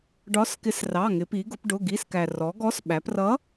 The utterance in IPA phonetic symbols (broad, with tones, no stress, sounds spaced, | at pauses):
ɖ ɒ˨˥ s k ɪ˨˥ s r ɑ˩˧˩ ŋ ɪ˩˧ p i˩˧ ɡ ʊ˩˧ p ɖ ʊ˩˧˩ ɡ i˩˧˩ s k æ˩ r ɔ˩˧ ɡ ɔ˨˥ s ɓ æ˩˧ p r ʌ˨˥